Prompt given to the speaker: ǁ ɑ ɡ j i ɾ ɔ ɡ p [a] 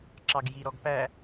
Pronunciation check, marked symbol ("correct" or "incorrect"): incorrect